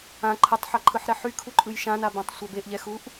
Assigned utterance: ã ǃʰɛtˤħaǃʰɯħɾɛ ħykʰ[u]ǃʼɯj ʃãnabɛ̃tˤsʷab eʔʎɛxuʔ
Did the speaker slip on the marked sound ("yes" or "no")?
no